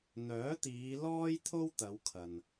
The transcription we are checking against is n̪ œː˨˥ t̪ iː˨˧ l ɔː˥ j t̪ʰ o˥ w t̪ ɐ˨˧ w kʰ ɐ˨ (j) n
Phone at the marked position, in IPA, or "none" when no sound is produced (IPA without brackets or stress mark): none